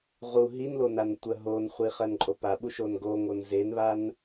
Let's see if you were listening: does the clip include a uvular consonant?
yes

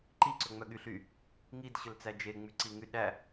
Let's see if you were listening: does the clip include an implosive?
yes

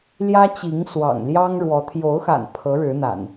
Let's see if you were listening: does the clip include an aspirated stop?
yes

